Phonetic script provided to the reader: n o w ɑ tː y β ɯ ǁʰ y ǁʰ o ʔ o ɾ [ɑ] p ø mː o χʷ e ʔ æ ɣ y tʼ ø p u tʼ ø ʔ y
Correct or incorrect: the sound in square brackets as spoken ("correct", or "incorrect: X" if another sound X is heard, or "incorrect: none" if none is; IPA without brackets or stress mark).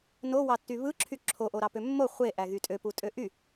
correct